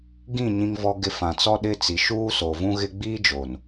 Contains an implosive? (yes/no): yes